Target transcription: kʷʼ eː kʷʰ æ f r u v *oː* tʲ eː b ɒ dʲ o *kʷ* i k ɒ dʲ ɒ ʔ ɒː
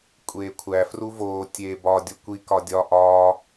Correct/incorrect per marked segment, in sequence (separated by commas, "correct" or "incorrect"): correct, correct